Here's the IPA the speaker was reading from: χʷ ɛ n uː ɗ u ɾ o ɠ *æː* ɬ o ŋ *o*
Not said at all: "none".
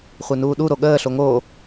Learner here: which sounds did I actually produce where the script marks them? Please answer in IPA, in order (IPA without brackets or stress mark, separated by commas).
əː, o